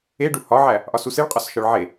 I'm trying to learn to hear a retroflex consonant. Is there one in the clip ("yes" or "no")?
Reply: yes